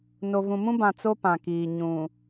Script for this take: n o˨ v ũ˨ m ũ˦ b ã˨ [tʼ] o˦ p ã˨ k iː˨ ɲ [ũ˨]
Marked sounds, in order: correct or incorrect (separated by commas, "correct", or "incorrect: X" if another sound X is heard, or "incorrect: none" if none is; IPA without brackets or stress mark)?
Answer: incorrect: t͡s, correct